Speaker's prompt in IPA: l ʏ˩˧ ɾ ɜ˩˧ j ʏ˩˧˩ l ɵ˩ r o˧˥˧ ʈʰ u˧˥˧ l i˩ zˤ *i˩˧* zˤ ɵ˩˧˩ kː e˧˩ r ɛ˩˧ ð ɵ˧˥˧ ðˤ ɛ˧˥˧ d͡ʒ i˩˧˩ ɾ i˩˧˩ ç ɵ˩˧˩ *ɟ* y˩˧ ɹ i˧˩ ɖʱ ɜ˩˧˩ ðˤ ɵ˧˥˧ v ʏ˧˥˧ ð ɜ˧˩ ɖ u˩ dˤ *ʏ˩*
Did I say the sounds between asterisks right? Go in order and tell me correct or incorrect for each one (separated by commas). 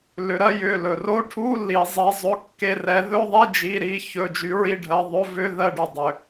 correct, incorrect, correct